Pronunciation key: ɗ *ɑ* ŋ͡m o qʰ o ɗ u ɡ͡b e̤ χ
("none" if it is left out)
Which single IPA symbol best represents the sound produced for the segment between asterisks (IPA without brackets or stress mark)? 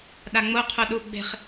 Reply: a